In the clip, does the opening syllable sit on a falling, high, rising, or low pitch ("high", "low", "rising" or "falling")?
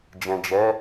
low